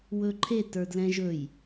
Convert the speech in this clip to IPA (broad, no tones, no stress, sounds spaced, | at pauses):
w ɵ ǃʰ e t ə˞ d l ɛ̃ ʒ ɵ j